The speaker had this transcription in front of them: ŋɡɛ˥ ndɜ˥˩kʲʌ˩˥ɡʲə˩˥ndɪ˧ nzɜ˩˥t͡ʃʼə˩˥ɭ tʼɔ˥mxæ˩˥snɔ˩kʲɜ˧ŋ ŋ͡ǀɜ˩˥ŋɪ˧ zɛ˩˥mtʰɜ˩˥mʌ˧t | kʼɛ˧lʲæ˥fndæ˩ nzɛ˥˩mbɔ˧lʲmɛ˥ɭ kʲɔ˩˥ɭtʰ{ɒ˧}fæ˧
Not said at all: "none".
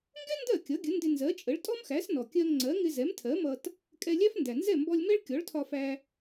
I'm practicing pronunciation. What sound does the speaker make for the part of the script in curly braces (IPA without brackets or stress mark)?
ɒ˧